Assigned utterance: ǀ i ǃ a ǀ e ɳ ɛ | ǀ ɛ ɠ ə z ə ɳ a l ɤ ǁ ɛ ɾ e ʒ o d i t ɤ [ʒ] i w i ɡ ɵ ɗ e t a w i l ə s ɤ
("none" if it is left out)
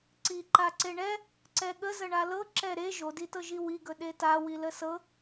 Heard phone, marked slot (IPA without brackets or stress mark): ʒ